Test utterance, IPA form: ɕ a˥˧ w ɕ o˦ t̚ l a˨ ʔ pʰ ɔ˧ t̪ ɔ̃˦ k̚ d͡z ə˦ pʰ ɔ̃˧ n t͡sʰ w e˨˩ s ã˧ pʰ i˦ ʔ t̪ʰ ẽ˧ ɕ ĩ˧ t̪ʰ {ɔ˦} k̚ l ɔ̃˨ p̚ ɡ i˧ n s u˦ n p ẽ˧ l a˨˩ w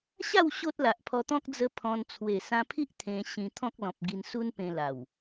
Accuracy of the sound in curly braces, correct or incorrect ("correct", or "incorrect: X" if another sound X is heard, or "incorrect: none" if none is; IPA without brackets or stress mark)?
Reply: incorrect: ɔ̃˦